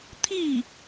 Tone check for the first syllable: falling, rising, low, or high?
falling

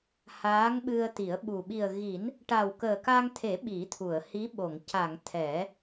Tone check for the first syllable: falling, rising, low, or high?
rising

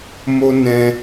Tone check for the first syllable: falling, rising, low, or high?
high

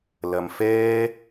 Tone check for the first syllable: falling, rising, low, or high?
low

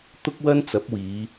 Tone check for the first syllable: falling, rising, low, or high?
high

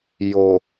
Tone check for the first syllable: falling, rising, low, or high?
low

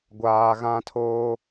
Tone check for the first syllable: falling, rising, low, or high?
low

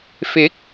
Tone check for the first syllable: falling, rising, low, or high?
rising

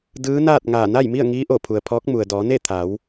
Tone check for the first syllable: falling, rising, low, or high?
rising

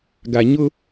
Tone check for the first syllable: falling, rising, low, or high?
low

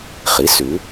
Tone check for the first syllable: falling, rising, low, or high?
rising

